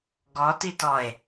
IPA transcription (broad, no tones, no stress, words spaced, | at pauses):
ɡɔtitɔe̯